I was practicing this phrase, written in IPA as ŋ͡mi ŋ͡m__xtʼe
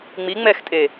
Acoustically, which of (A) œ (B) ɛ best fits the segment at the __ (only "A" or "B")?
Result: B